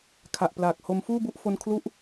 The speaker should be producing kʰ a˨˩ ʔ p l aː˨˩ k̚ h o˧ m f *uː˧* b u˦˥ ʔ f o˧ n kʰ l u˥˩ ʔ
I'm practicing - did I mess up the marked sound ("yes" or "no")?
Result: yes